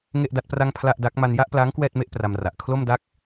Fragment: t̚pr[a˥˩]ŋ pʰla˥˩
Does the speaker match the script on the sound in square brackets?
yes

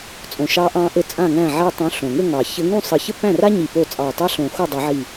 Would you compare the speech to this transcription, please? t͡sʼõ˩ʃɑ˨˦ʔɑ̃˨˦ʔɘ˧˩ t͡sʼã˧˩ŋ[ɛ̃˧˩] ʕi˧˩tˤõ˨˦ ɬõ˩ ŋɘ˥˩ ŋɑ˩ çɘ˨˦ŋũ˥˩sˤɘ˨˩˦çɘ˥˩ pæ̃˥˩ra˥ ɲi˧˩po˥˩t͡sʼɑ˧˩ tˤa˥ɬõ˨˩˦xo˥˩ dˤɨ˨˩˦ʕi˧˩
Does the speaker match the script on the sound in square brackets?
no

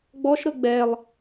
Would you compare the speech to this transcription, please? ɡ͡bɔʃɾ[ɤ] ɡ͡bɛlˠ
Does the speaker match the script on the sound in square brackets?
yes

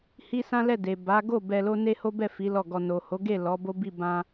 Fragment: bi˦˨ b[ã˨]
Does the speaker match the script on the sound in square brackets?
no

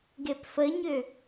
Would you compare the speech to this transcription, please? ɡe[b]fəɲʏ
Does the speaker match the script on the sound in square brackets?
no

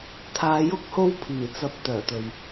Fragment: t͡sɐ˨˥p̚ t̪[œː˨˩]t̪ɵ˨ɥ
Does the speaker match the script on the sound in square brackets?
yes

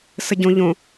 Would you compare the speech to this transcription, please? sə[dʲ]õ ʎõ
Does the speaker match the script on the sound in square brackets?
no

